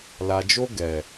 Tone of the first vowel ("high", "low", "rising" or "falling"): low